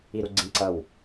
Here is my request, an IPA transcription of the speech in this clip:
i ɾ u ɡ͡ǀ ĩ ǀ ʌ w

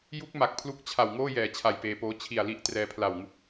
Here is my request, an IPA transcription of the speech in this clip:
j u˦˥ k̚ m a˨˩ k̚ pʰ l u˦˥ k̚ t͡ɕʰ a˨˩ w ŋ oː˥˩ j ɛː˨˩ t͡ɕʰ a˨˩ j p eː˧ p oː˦˥ t͡ɕʰ i˨˩ a̯ l i˦˥ ʔ t r ɛː˧ pʰ l a˨˩ w ŋ u˦˥ k̚

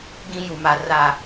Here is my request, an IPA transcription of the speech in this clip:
ɡ ĩ˦ j u˨ m a˨ r a˦˨

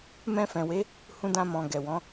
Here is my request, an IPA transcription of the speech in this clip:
m ɛ̃˧ f ɛ̃˨ w e˨˦ | h ũ˧ d ã˧ m ɔ̃˨ ɡ ɛ˨ w ɔ̃˨˦

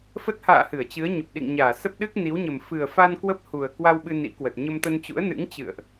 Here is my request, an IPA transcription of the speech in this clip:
f ə˦˥ t̚ h a̰ː˧˨ h ɨ˧˩ ə̯ t͡ɕ ɨ˨˦ ə̯ ɲ ə˨˩ p̚ ɗ ḭ˧˨ ŋ ɲ aː˧˩ s ə˦˥ p̚ ɗ ɨ˦˥ k̚ n i˨˦ w ɲ ə˨˩ m f ɨ˨˩ ə̯ f a˧ n k w ə˦˥ p̚ h u˨˩ ə̯ k w a˧ w ɓ ɨ˧ n ḭ˧˥ k w ə˨˩ t̚ ɲ ə˧ m t̪ ə˧ n t͡ɕ ṵ˧˥ ə̯ n ɨ̰˧˥ ŋ t͡ɕ ɨ̰˧˨ ə̯ ʔ

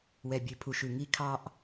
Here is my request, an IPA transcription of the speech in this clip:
w ɛ˩ bʲ ʉ˩ pʰ u˩ ʃ ʉ˩ ŋ i˧ kʰ ɑ˧ ʔ

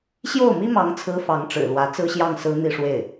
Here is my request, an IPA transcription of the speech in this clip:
ɕ j o˥˩ ʊ̯ m i˥ m ɑ˧˥ ŋ t͡sʰ ɹ̩˧˥ f ɑ˧˥ ŋ ʈ͡ʂ ɻ̩˨˩ l w ä˧˥ t͡s ɹ̩˥ ɕ j ɑ˥˩ ŋ s ɹ̩˥ n̪ i˥˧ ʂ w e˥˩ ɪ̯

